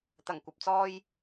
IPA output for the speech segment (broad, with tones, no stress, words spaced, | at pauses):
t̪ɐ˨˩ŋkʷɐ˨p̚t͡sɔː˧j